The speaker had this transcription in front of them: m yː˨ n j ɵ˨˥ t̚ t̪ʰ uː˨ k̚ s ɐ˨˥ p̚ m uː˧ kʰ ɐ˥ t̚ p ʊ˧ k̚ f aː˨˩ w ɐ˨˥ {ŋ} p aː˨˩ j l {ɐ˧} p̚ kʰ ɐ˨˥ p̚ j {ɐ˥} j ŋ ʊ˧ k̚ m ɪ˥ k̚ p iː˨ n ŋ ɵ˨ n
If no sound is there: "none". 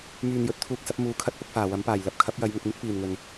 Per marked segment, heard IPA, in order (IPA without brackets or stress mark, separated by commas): m, ɐ˧, ɐ˨˥